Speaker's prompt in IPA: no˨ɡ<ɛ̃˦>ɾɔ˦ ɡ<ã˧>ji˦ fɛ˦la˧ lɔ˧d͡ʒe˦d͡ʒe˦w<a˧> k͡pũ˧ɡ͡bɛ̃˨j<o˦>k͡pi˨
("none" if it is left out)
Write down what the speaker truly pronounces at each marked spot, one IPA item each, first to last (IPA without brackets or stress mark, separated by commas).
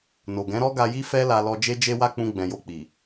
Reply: ɛ̃˨˦, a˧, a˦, o˧